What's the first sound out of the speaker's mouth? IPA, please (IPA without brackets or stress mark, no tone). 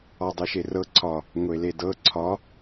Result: ɒ